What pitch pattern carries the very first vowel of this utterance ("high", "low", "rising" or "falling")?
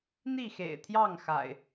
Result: falling